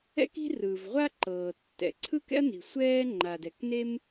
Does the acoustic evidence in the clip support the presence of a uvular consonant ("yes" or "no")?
yes